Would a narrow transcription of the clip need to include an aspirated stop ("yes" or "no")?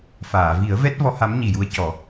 no